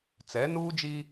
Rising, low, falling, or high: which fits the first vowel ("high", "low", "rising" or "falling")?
rising